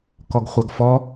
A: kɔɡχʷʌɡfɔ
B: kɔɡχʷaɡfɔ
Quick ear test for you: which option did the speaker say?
B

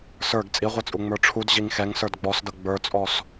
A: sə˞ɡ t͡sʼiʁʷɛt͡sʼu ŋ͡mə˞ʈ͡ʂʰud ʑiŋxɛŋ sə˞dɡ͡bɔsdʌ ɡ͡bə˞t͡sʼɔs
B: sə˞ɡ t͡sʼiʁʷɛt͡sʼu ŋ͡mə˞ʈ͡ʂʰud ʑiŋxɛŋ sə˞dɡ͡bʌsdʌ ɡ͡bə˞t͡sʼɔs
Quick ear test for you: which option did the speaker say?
A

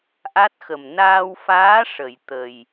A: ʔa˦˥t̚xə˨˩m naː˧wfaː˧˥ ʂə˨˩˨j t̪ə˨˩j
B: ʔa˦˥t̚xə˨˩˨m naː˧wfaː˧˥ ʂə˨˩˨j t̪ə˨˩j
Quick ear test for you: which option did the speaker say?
A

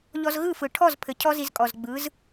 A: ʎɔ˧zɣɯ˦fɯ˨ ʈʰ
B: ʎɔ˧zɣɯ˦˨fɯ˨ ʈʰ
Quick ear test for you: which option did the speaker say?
B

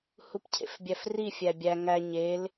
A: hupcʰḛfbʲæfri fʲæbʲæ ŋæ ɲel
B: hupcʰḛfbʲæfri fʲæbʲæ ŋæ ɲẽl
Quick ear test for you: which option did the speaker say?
A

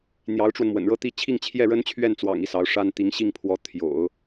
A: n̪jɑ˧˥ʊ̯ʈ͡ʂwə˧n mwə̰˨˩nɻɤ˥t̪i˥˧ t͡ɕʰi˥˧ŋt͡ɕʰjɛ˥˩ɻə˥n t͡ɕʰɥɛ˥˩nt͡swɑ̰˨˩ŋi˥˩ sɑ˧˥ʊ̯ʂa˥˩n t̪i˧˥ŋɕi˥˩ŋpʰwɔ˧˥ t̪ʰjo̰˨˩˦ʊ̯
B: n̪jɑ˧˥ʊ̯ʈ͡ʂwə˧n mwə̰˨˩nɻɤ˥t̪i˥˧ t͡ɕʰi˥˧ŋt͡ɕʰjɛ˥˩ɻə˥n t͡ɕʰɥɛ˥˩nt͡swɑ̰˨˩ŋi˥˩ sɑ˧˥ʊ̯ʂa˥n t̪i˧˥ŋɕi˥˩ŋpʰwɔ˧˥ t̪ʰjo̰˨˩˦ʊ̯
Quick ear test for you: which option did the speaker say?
B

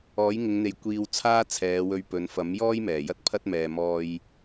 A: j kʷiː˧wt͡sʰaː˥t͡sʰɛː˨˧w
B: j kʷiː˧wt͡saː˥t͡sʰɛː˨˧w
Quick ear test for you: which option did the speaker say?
A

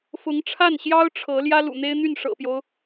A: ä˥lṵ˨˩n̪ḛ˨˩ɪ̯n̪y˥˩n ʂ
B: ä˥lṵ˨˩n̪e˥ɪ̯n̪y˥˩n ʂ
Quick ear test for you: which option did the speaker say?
B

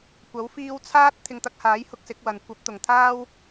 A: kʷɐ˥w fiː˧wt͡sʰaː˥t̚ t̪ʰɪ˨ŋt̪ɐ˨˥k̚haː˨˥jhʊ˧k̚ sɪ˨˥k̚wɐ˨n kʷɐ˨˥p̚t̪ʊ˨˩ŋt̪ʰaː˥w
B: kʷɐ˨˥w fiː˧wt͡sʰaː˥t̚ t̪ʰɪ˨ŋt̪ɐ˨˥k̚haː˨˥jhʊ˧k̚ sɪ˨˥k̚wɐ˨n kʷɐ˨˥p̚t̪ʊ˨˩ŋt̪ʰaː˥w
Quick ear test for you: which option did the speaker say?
B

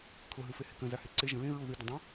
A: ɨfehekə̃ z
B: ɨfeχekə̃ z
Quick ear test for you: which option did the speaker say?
A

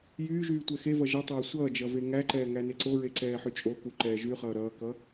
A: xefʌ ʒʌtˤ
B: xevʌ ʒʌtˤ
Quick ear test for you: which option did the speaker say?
B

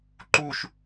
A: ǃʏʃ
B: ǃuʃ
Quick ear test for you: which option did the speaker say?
B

